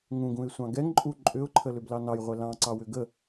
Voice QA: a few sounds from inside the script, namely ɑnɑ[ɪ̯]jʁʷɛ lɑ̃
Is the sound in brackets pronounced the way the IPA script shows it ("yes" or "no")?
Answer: no